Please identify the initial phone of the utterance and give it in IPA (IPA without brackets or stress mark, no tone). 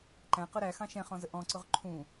ǃ